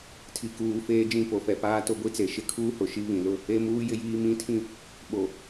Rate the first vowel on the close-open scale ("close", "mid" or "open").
close